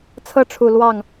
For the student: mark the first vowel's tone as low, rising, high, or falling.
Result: high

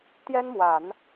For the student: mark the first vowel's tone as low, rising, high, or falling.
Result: high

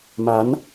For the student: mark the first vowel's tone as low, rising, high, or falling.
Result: rising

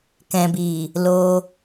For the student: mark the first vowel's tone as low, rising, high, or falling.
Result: low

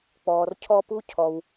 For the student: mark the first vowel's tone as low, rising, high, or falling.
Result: low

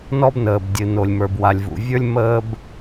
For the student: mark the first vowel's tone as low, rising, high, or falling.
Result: high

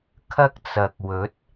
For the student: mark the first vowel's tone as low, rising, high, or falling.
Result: high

